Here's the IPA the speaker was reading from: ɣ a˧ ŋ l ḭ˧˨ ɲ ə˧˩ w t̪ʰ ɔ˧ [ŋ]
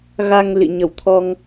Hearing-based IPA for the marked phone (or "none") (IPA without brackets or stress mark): ŋ